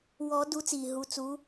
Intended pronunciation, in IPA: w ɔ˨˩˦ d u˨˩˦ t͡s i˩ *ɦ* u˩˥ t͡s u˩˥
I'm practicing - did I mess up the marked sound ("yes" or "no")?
no